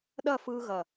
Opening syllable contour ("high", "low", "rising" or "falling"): falling